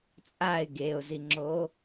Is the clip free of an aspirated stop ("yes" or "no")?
yes